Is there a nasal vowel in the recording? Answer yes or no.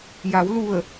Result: no